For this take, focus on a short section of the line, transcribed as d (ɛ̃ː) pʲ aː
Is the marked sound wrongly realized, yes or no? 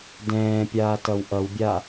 no